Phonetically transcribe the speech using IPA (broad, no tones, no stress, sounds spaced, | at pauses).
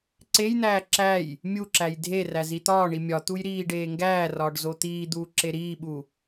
ǀ e j n̪ æː ǁ æ j | mʲ u ǁ æ j dʱ e r æ z i t̪ ɒː ɳ i mʲ ɒ t̪ u j ɾ iː ɖ eː ŋ ɡ æː r ɒː ɖ z o t̪ iː d̪ uː ǁ e ɾ iː ɓ u